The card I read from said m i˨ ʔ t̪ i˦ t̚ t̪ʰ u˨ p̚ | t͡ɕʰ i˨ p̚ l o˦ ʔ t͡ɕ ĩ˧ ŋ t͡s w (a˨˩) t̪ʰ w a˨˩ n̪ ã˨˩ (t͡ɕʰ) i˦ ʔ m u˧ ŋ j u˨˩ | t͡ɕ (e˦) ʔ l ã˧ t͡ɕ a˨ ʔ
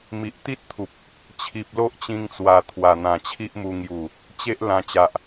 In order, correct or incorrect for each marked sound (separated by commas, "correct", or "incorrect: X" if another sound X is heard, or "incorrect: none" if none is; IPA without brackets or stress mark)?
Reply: correct, correct, correct